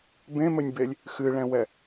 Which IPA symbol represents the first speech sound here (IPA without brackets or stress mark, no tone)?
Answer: b